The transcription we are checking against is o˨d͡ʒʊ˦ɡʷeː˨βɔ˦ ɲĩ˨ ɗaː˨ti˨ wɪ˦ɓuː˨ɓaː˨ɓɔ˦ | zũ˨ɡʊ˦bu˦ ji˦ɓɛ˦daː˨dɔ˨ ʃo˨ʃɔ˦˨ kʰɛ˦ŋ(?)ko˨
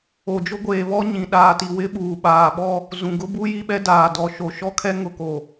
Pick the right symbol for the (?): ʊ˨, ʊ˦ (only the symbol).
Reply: ʊ˨